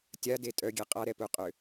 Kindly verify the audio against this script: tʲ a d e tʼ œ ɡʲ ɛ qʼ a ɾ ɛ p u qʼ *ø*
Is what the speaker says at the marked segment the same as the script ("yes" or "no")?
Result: yes